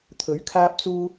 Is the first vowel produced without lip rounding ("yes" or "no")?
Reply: no